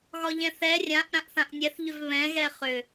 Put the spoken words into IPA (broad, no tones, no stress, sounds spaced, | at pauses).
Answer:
ɣ ɒ ʎ ɛ̃ θ ɛ rʲ ã ʔ ɾ ã ʔ θ ã ʔ nʲ ɛ θ ʎ ʏ v β ɛ̃ ɣ ɛ χ ʏ